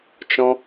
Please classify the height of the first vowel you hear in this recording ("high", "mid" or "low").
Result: mid